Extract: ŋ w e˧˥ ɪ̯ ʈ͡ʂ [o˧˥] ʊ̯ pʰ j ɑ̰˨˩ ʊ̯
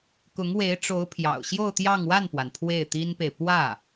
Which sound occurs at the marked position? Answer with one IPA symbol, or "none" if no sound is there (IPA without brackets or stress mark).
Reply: o˧˥